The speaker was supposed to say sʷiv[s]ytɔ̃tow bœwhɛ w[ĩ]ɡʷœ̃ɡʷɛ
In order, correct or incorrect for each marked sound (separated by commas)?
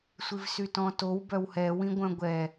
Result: correct, correct